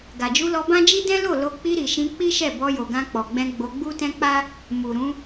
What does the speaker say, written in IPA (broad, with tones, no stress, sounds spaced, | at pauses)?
ɡ a˨ d͡ʒ u˧ l ɔ˧ b ã˦ d͡ʒ i˦ d ɛ̃˦ l o˦˨ l o˧ k͡p i˧ ɾ i˨ ʃ ĩ˧ k͡p i˦ ʃ ɛ˦˨ b ɔ˧ j o˨ ɡ ã˧ k͡p ɔ˨ ɡ͡b ɛ̃˧ ɡ͡b o˧ ɡ͡b u˦ t ɛ̃˦ k͡p a˦ | m u˨ ɾ ũ˨˦